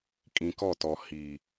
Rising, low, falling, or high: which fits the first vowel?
low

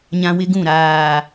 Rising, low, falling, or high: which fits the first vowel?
high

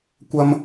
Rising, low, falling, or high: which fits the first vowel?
high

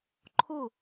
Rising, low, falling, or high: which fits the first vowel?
falling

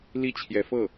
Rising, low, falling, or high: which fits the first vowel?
falling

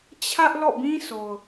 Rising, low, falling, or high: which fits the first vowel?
high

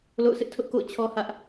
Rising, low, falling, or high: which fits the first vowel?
falling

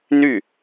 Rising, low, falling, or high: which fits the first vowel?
falling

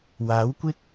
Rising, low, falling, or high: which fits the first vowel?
rising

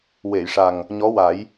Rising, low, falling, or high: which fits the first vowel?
low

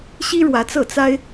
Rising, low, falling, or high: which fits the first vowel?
high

